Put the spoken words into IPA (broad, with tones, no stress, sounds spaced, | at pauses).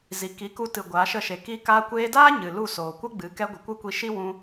z i˨ k i˨˦ k u˧ t ɨ˨ ɡʷ aː˨˦ ʃ ə˦˨ ʃ e˨ k iː˦ k aː˧ kʷ eː˧ d aː˦ ɲ ɨ˨ l u˦˨ s oː˨ kʷ ə˦ ɡ͡b ɨ˨˦ k ɛ˧ ɡʷ ə˨ kʷ ɨ˦ kʷ i˧ ʃ i˦ w ũ˧